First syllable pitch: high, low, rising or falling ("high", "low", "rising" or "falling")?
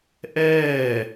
falling